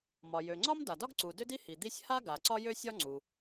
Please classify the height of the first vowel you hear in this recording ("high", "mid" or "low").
low